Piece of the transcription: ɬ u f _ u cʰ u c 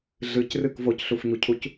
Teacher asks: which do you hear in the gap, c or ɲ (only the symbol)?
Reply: ɲ